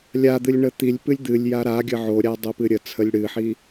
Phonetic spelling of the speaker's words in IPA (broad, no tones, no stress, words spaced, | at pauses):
lʲad̪ɨlʲ ɳət̪ilʲpɨlʲ d̪ɨlʲja ɾaɡʲə ʕoɾʲa dˤopɨɾʲət͡sʰəlʲ ɽɨħi